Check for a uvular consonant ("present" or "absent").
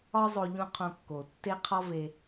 present